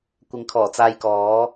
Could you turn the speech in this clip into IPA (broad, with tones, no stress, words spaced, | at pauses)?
kʷɪ˨˥ŋkʰɔː˨˩t͡saː˧jkɔː˨˥